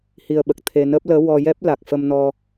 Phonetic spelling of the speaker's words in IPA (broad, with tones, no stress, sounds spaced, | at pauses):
h i˧ ə̯ ɓ ə˨˩ k̚ t̪ʰ e˧ n əː˦˥ p̚ l əː˧˥ w ɔ˧ j ɛ˦˥ p̚ l a˨˩ k̚ f ə˧ m n ɔ˧